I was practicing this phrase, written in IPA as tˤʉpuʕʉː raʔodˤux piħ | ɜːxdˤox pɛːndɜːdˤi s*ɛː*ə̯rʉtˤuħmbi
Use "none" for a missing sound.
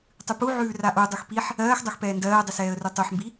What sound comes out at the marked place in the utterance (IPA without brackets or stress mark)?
ɛː